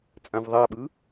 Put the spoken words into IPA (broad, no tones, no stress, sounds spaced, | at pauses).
t͡sʼ ã v ðˤ a ɓ ɯ